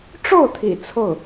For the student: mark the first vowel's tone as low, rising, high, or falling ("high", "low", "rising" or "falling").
falling